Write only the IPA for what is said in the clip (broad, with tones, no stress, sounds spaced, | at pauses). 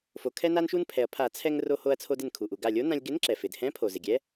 f o˩ kʰ ɛ˧ n a˧ n ʃ u˧ n pʰ ɛ˩ ɐ̯ pʰ a˨˩˦ t͡sʰ ɛ˧ ŋ r o˧ h o˧ ɐ̯ t͡sʰ o˧ d ɪ˧˩ n kʰ u˩ ʔ u˩ ɡ a˧˩ lʲ o˧˥ n ã˧ lʲ ɡ ɪ˧˥ n ǁ ɛ˩ f ɪ˩ d h ɛ̃˧˥ pʰ o˩ z ɪ˩ ɡʲ ɛ˧˥